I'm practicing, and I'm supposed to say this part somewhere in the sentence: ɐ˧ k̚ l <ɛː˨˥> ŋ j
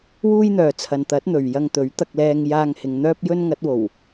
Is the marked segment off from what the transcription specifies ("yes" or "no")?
yes